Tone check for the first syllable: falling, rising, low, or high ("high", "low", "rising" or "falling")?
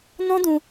high